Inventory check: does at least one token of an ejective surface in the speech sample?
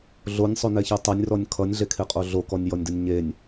yes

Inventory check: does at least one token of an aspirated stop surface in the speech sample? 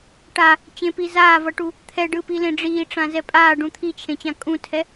yes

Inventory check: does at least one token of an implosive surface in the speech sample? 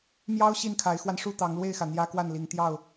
no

